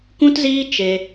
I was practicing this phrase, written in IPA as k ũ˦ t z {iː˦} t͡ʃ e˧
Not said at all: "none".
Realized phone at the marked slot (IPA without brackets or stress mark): iː˦